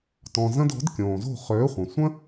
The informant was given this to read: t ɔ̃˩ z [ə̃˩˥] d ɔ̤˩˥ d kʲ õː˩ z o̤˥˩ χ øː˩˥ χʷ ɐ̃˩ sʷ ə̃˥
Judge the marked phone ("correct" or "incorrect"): incorrect